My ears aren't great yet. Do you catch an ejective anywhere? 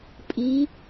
yes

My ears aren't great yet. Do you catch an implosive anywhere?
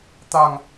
no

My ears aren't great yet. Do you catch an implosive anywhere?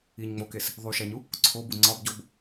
no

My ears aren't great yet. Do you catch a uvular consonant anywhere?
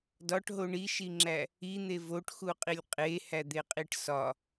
yes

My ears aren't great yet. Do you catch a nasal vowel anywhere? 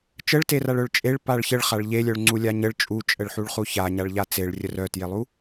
no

